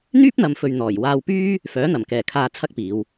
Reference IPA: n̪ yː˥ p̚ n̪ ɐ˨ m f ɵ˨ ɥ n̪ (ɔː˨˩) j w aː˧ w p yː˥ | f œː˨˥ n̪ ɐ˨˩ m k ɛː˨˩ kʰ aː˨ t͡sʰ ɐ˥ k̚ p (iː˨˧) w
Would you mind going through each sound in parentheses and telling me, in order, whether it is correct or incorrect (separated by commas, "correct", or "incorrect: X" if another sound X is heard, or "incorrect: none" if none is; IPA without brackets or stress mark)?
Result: correct, correct